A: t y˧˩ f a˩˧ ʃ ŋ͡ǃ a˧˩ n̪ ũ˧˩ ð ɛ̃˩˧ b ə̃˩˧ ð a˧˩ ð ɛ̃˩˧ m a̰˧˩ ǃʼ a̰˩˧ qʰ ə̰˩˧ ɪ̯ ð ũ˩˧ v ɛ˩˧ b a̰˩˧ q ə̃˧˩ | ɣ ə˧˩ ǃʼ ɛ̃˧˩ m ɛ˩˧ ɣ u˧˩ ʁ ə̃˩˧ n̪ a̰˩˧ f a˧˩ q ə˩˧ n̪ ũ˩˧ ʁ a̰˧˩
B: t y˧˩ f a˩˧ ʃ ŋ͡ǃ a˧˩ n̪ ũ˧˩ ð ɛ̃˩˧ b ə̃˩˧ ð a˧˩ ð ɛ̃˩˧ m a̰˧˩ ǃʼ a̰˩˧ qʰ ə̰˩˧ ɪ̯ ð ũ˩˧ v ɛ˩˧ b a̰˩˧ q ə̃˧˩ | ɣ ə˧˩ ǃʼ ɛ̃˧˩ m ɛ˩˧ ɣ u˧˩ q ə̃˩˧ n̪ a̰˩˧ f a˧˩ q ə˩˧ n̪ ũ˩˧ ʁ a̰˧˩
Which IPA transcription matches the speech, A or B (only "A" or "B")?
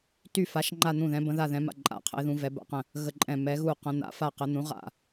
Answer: B